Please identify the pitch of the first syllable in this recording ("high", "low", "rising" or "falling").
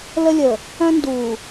high